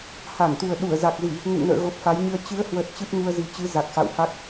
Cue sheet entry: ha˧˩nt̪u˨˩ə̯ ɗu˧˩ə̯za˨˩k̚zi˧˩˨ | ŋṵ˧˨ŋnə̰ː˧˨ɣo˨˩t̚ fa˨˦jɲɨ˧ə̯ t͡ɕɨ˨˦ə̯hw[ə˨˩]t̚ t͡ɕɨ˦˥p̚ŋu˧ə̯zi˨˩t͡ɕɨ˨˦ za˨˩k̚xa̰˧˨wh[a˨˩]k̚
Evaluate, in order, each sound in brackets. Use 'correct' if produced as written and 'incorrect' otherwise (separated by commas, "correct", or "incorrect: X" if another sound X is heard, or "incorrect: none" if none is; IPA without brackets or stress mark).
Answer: correct, incorrect: a˦˥